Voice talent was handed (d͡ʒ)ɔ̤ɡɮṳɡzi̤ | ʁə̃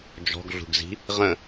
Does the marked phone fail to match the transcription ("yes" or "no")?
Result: no